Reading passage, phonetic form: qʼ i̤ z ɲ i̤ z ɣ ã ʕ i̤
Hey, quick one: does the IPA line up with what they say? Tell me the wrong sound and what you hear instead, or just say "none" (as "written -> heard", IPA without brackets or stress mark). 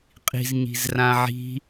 ɣ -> r